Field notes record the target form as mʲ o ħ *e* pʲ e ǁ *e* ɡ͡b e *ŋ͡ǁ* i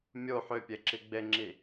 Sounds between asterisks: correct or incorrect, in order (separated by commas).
incorrect, incorrect, correct